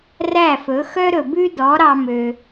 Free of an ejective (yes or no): yes